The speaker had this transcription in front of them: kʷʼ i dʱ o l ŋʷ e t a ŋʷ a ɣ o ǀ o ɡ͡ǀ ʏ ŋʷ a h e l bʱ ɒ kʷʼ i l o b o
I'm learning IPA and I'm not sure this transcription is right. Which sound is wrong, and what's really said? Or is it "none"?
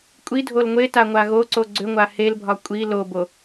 none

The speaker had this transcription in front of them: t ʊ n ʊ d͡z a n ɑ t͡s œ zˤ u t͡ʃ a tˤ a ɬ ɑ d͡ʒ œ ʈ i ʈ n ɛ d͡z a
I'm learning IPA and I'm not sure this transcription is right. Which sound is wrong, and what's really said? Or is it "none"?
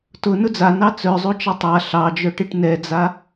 none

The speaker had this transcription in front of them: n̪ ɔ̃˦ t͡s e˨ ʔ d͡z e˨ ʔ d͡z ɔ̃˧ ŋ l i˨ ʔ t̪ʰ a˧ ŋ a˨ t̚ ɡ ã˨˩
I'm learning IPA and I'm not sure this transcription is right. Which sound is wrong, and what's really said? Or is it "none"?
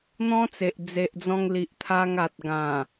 none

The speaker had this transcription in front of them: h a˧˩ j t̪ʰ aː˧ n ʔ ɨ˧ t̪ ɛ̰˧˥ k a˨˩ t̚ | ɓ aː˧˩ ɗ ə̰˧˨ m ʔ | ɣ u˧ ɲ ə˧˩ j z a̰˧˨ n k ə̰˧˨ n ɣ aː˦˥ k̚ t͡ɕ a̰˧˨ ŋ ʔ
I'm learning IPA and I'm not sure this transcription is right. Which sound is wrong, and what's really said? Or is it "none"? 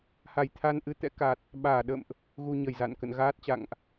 k̚ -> t̚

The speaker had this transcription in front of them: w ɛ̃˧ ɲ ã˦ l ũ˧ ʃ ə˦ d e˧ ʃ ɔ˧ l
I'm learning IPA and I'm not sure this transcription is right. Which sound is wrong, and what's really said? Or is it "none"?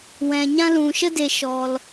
none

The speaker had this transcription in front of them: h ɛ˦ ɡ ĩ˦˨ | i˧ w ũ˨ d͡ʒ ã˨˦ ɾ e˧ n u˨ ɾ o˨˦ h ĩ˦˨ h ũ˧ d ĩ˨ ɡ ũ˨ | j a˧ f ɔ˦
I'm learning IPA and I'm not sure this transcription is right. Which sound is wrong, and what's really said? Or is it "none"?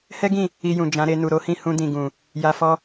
w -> j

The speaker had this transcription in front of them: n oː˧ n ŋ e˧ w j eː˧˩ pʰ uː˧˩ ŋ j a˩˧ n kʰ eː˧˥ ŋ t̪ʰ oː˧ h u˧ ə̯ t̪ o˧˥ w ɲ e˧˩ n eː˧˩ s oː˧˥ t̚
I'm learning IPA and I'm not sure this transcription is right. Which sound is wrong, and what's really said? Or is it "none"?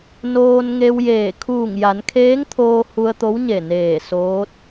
pʰ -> kʰ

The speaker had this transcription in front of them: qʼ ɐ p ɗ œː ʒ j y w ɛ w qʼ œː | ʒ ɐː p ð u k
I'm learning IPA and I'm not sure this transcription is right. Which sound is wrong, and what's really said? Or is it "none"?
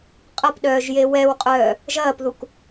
y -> e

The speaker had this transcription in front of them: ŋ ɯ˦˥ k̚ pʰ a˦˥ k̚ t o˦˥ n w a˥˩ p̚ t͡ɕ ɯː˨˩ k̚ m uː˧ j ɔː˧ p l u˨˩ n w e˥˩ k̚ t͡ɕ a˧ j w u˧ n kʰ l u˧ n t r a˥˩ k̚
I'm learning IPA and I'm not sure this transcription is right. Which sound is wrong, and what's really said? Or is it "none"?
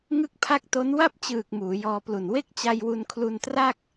uː˧ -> uː˩˦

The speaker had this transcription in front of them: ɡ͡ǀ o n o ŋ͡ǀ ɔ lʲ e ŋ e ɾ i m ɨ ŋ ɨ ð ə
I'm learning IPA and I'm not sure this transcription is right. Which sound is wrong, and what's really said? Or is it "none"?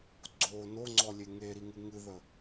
m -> ŋ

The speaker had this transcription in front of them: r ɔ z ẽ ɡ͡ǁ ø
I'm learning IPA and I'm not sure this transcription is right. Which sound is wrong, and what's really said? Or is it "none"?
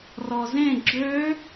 none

